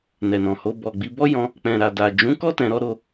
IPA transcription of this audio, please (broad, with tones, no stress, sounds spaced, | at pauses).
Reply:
n ɛ˨ n ɔ̃˨ h o˧ b ɔ˨ ɡ͡b i˧ b ɔ˦ j ɔ̃˧ | k͡p ɛ̃˨ ɾ a˨ d a˨ d͡ʒ ũ˨˦ k ɔ˦ t ɛ̃˧ ɾ ɔ˦ ɾ o˧